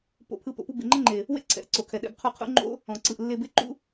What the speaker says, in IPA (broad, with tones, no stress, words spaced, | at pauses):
po̰˧pʰɯ˧ po̰˧pu˦ bḛ˨ŋ͡ǃɛ˦ŋ͡ǃe˨ | wḛ˦ ǀʰɛ̰˨ʔ ǀo˨kʰɛ˨ɗɛ̰˧bqʰu˦˨ qʰṵ˦ŋ͡ǃo̰˦ | ɔ̃˨ ǀɯ˨ʔlːe˧ be˦ǃṵ˦